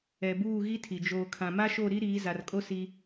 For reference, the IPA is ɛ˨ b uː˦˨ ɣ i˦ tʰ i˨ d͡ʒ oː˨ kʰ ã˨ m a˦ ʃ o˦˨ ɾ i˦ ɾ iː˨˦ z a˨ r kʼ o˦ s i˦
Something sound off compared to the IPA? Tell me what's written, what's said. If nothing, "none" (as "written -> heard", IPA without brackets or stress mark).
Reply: none